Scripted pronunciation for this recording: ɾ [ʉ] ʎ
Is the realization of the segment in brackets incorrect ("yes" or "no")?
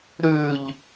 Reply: no